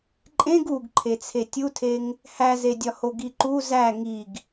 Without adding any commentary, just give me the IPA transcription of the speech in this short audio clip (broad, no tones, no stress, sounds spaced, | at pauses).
ǃʼ ẽ ɡ u ɡ ǃʰ e t͡sʰ e tʲ u tʰ e ŋ | h æ z e dʲ ɒ h o ɡ i ǃ u z æ ŋ i ɡ